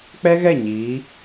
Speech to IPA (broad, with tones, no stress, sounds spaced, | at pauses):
k͡p ɛ˦ ɣ ɛ˦˨ ɲ iː˨˦